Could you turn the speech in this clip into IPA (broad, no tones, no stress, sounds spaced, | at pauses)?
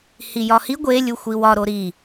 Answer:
h i j ɒ h i ɡʷ e lʲ u xʷ i w ɒ ɾ o ɾ i